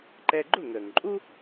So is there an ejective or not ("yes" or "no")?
yes